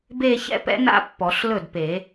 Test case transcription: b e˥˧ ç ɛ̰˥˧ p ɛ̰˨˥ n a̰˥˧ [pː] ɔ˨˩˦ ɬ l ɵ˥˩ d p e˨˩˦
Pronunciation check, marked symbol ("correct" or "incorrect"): correct